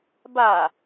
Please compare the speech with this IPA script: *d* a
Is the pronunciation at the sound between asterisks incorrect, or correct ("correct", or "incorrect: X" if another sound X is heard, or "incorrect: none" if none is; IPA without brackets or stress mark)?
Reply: incorrect: b